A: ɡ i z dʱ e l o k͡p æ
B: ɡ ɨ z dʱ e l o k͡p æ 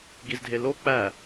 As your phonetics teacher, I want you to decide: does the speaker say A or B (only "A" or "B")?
A